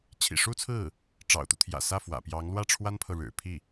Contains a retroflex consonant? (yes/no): yes